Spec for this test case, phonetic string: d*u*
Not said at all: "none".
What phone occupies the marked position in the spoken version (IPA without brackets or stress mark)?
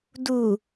u